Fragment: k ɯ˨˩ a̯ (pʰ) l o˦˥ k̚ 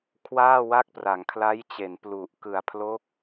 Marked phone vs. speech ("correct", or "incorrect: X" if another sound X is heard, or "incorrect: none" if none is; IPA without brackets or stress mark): correct